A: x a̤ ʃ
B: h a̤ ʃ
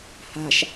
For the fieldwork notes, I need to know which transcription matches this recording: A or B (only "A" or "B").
B